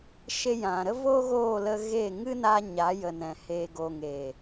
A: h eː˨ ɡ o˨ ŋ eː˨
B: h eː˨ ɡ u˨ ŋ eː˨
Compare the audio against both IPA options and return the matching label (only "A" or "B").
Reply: A